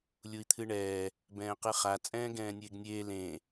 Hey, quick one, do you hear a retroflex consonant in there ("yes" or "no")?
yes